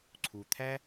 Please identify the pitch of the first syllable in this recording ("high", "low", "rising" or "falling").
low